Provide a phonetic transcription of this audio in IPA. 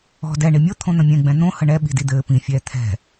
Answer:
ɔ̤ d ɛ ɳ i mʲ o t̪ʰ õ n̪ ə̃ mʲ ɛ̃ ɡ͡b ɛ̃ n̪ õ h ə ɳ ɛ ɓ i̤ d i d̪ ɘː p ĩ fʲ ɛː t̪ʰ ɛ̤

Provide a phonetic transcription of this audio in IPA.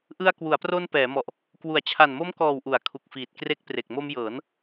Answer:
ʔ ɯ˧ a̯ k w u˩˦ a̯ p r o˧ n p ɛː˩˦ m ɔ˨˩ ʔ | k w u˩˦ a̯ t͡ɕʰ a˨˩ n m o˦˥ m k ɔː˨˩ w ʔ u˩˦ a̯ kʰ u˨˩ k̚ f iː˨˩ t̚ k r e˦˥ k̚ p r e˨˩ k̚ m o˧ m j ɤː˩˦ n

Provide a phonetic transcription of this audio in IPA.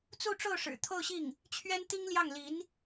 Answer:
t͡s u˥˧ ʈ͡ʂ o˥˩ ʊ̯ ʂ ɻ̩˨˩ t̪ʰ o˥˧ ʊ̯ ɕ i˥˩ ŋ | t͡ɕʰ ɥ ɛ˥ n t̪ i˥ ŋ l j ɑ˥˩ ŋ l i˧˥ n

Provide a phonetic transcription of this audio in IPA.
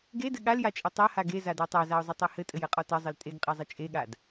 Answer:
ɡ e d ɘ ɠ a l j a t͡ʃʼ ɘ tˤ a h a ɡ e z a d a tˤ a z a ʊ̯ zˤ ɘ tˤ e h ɘ tʼ ɘ j ɘ qʼ ɔ t ɘ zˤ ɘ l tʼ e ɡ qʼ e zˤ ɘ t͡ʃʼ e ɠ a d

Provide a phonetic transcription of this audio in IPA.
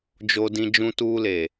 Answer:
d͡ʒ o˦ d ĩ˦ d͡ʒ ũ˦ t uː˦ l e˨

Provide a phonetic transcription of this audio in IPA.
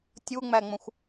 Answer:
tʲ u ŋ͡m æ ŋ͡m ə̃ xʷ

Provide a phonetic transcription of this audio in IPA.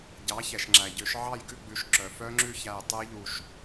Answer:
ɟ ɑ˩˥ ç ɛ˩ ʃ ŋ͡ǁ æ˩ ɟ ø˨˩˦ ʃ ʕ ɑ˥˨ j ɡ ʉ˥˨ ɡ͡b ʉ˩˥ ʃ ǁ œ˩ f œ˦˥ ŋ͡ǁ ʉ˥˨ ç æ˧˩ j tˤ ʉ˦˥ j ʎ u˧˩ ʃ

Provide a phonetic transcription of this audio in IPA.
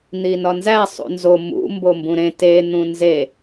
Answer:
n̪ i n ɒ n z æ sˤ ṵ n z o m ṵ m b o m b ũ ɾ ẽ t e n̪ ũ n z e

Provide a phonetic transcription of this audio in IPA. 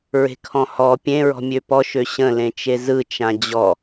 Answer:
ɹ e̤ kʰ ɔ̃ h ɔ pʲ ẽ ɹ ɔ̤ mʲ ø p ɔ ʃ ø ɕ ə̃ l ẽ t͡ʃ e z ɯ t͡ʃ ã d͡ʑ ɔ

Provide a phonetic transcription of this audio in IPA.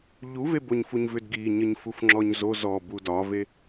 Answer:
ʎ u v e b o ɲ f u ɲ v ʏ d ɡ i ɲ ə ɲ f u f ŋ͡ǁ ɔ ɲ z o z ɔ b u d ɒ v e

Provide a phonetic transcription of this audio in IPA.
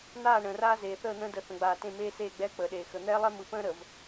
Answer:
n̪ aː˦˨ ɳ ə̃ː˨ r aː˦ z eː˨ θ əː˦˨ n̪ ə̃ː˦ d ə˨˦ θ ə̃˨ ɡ͡b aː˨ t ẽ˦˨ m eː˦ s eː˦˨ ɡ͡b ɛː˦ k͡p əː˨ ɗ eː˨ x ə˨ n̪ ɛː˦ lˠ ɛ˦ m ɯ˨ p ə̃ː˦ ɾ ə˨ v

